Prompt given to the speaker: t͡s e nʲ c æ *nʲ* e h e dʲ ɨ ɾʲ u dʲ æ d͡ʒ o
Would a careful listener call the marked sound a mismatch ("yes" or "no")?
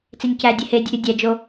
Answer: yes